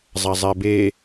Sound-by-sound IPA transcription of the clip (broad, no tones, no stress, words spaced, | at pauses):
zˤazˤɛbe